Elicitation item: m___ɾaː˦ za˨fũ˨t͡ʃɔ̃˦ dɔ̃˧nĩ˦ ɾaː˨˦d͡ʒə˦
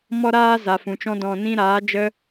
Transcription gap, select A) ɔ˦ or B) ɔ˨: A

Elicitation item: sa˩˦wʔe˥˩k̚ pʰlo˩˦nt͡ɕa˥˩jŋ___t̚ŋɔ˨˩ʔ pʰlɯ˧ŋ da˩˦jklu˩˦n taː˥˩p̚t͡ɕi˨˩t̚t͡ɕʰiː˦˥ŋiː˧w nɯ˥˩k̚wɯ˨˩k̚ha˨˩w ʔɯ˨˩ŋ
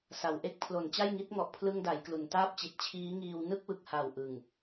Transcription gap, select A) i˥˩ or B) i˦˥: B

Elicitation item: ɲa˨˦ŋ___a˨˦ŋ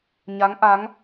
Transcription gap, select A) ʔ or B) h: A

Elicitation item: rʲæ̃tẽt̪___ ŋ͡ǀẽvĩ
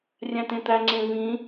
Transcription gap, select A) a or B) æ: B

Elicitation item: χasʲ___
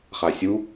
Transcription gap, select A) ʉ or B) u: B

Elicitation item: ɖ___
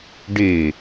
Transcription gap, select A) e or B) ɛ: A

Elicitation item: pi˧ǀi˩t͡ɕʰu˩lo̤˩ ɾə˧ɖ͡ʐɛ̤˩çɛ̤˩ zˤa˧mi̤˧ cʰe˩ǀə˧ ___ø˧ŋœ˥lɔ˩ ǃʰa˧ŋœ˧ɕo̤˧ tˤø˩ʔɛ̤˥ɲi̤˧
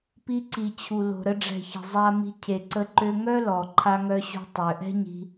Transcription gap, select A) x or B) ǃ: B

